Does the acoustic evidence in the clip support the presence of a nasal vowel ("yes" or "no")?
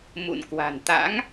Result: no